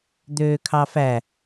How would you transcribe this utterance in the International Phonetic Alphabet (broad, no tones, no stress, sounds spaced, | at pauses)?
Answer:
d̪ øː kʰ ɑ f æ